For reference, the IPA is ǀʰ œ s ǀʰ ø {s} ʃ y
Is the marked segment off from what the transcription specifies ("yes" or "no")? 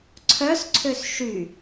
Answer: no